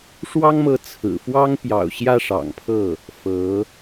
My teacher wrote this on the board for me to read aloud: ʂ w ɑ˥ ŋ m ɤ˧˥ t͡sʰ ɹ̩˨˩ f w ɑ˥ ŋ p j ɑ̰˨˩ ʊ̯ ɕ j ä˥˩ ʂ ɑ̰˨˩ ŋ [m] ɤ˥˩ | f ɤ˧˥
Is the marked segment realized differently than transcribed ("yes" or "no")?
yes